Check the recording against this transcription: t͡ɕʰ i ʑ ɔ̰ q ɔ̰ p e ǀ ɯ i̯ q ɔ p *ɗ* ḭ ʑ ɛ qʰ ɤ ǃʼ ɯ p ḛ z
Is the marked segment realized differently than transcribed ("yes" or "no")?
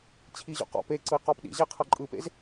no